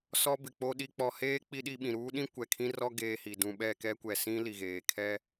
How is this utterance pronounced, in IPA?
s ɔ˦ b ɪ˨ k͡p o˦ ɗ i˨ k͡p ɔ˨ h eː˦ k͡p i˦ ɗ i˦ ɓ ĩ˨ ɾ uː˦ ɗ ĩ˦ kʷ ɛ˨ kʰ ĩ˦ r ɔ˦ ɡ eː˦ h i˨ d ũ˦ ɓ ɛ˦˨ k ɛ˦ kʷ ɛ˨ s ĩ˦ l i˨ ɣ eː˨ kʰ ɛ˦

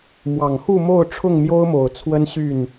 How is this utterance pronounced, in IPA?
m w ɑ˨˩ ŋ x u˥˨ m o˥˨ ʊ̯ ʈ͡ʂʰ ʊ˥˨ ŋ m j o˦ ʊ̯ m o˨˩ ʊ̯ t͡sʰ w ə˦ n ɕ y˥˨ n

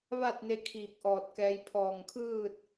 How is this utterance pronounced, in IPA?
ʋ a˥˨ t̚ n e˧ kʰ iː˧˩ k̚ ʔ ɔː˧˩ t̚ k ɛː˧ j pʰ ɔː˧˩ ŋ kʰ ɯː˥˨ t̚

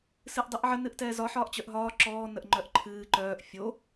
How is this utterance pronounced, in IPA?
s ɨ ʔ dˤ ɨ ʔ ʕ ə n ɨ ʔ t ɛː z ɒ ħ ɒː ʔ t͡ɕ œ ʔ ɦ ɒː ǁ ɔː n ə ʔ ŋ͡ǃ œ ʔ ǃʰ ɨː ǃ œː ʔ fʲ o

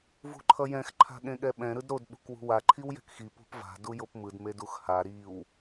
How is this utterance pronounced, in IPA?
v ṳ ǃʰ ʌ j ɛ̃ x ǃʰ a̤ ɠ ẽ ɠ ɛ ɓ ɛ̃ ɾ ɯ d ɾ o d ɓ ṳ k w ṳ w a ǃʰ i w j ɛ̤ k x i p ṳ p v a̤ d u j o p m ɯ d m e d u x h a ɾ i w

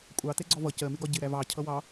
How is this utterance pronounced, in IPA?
kʷʼ ɑ t ɛ ɡ͡ǀ ɔ v ʌ c ɜ m ɪ ɡ ɒ ɟ ɪ ɾ æ v ɑ cʰ ʌ w ɑ

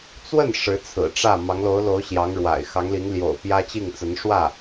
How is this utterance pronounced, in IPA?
t͡s w ə˥˩ n ʂ ɻ̩˧˥ t͡sʰ ɹ̩˨˩ ʈ͡ʂ ä˥˩ m ɑ˧˥ ŋ l o˧˥ ʊ̯ l o˧˥ ʊ̯ ɕ j ɑ˧˥ ŋ ɻ w a̰˨˩ ɪ̯ x ɑ˧˥ ŋ l i˧˥ ŋ l j o̰˨˩ ʊ̯ p j ä˥ t͡ɕ i˥˩ ŋ t͡s ə˧˥ n ʂ w ä˥˩

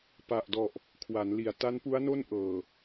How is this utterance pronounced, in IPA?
p a˨˩ ʔ d ɔ˨˩ ʔ | kʰ w a˩˦ n l i˨˩ a̯ t a˦˥ n p u˦˥ a̯ n o˥˩ n ʔ ɤː˨˩

